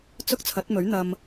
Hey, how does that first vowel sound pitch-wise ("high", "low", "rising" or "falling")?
high